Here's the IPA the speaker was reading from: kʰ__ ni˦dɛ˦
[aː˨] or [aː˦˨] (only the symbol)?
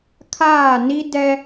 aː˦˨